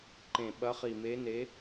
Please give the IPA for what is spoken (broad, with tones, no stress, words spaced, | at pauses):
ǃẽ˨˩ ɓɐ˨˦χi˨˩me˨˦ne˨˦